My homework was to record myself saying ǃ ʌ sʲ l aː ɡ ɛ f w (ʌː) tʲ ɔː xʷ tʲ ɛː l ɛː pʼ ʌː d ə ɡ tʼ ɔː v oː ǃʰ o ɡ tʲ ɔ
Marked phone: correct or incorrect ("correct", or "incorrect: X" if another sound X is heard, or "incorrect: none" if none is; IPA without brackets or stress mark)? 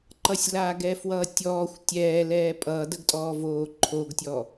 correct